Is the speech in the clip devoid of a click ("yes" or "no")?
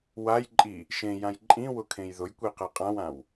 no